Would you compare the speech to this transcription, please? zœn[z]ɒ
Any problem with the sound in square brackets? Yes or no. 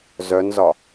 no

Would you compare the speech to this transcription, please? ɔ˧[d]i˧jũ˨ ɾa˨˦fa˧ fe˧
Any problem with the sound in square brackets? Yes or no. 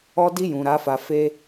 no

